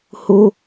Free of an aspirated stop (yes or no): yes